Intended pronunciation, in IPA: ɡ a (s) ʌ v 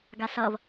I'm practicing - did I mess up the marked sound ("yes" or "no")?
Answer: no